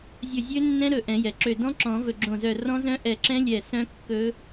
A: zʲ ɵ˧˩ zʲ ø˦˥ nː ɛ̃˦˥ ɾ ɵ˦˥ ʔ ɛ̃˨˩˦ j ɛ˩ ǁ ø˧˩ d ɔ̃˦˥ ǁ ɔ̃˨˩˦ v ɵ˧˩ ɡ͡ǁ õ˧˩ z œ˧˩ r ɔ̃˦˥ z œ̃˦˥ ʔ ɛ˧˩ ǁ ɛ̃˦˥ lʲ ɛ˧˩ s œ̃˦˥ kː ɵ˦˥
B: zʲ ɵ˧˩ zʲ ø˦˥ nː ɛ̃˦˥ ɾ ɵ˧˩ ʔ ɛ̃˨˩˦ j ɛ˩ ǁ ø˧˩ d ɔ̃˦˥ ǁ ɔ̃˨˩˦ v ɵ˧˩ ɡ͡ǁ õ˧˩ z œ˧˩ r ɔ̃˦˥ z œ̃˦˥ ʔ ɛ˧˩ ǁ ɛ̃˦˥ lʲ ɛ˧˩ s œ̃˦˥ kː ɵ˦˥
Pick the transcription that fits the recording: B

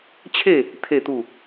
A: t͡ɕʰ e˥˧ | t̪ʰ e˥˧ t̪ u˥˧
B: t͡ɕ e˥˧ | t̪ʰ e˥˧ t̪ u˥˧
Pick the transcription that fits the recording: A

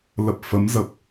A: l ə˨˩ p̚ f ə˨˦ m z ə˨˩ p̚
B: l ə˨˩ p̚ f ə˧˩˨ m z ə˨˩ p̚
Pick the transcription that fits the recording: A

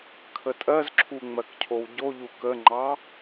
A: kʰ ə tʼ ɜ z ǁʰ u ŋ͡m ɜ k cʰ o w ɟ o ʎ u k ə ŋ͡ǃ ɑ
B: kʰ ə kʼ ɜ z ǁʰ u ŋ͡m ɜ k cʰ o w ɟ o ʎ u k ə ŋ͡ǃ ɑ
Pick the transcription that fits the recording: A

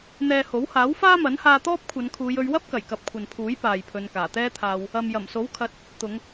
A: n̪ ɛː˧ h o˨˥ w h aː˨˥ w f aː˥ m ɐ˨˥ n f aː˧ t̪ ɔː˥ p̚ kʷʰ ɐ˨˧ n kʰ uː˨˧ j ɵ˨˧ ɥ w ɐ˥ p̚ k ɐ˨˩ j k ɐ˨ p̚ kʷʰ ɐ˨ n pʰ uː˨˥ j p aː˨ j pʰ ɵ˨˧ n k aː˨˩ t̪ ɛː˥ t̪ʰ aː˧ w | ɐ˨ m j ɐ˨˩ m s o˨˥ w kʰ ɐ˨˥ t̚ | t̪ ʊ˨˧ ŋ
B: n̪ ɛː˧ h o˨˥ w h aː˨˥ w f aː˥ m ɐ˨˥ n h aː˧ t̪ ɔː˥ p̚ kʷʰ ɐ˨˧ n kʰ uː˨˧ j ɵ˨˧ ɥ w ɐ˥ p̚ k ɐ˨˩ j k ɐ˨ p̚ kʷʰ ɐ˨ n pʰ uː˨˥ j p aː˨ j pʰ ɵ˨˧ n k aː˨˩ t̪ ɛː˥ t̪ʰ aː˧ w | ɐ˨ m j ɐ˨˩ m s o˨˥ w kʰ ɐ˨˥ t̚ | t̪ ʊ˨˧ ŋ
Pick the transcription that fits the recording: B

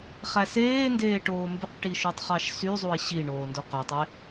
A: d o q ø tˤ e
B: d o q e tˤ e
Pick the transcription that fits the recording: A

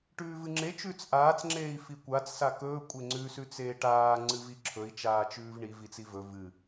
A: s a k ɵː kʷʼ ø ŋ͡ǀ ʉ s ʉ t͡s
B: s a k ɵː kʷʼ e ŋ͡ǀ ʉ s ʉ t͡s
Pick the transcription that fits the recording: B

